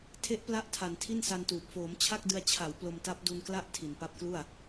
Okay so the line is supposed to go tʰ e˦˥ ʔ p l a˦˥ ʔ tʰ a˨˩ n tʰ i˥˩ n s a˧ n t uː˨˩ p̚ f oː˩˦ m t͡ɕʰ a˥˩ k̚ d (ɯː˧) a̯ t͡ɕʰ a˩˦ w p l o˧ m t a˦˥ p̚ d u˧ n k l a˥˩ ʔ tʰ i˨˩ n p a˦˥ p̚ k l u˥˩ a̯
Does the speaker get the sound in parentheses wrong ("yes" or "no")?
yes